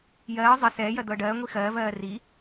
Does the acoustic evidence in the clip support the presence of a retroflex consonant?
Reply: yes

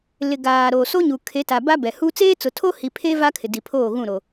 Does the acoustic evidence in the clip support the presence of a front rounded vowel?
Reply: no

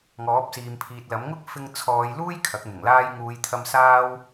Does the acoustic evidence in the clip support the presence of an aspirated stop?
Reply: yes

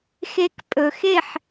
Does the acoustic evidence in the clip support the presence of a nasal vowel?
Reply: no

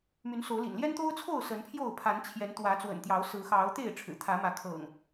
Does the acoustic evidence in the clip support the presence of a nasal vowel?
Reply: no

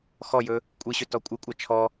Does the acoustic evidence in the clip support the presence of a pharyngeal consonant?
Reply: no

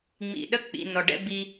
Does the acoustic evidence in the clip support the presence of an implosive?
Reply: yes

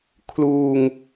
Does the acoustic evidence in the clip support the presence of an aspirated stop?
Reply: yes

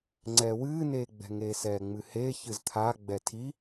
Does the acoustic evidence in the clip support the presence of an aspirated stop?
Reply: yes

